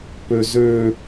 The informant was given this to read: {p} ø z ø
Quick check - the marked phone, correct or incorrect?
correct